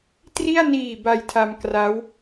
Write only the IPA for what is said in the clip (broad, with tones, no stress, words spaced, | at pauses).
tri˥˩a̯ niː˨˩ ba˧jtʰa˧mkra˦˥w